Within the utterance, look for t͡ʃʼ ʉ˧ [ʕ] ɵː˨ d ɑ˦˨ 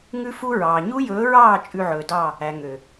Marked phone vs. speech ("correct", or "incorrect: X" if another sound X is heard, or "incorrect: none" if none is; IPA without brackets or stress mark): correct